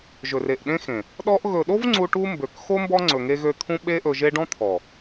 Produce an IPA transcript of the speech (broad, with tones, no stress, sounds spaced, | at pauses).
ʒ ɵ˨ r e˨ ʔ ɗ ẽ˦ x ẽ˨ | ɗ ɔ˦ ʔ ɣ ɵ˨ ɗ o˦ v ŋ͡ǀ u˧ ʈ u˦ m b ø˨ k x o˦ m b ɔ˦ ŋ͡ǀ ɵ˨ ŋ e˧ ɣ ø˧ t̪ʰ ũ˦ ɓ e˦ ʔ ɵ˧ ʒ e˦ ɖ ɔ̃˦ t̪ʰ ɔ˨